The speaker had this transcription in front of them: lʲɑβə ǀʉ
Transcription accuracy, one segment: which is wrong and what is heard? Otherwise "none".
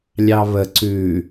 none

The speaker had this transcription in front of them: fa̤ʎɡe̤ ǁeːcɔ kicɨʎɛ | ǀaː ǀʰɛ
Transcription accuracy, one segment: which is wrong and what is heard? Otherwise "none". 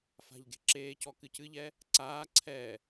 i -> ɨ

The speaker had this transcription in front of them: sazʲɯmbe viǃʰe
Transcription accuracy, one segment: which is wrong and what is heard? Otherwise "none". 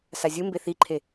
v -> θ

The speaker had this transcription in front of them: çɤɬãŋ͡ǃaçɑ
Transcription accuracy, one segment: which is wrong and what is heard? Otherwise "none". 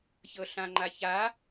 ɑ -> a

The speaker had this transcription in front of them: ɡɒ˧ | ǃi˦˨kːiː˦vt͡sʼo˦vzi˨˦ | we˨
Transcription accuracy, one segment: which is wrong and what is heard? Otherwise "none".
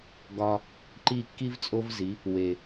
iː˦ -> i˦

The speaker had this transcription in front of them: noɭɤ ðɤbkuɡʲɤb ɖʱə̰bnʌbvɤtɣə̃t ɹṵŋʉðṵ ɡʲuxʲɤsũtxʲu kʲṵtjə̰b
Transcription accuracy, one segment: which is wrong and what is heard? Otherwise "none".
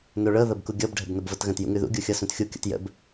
ɹ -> j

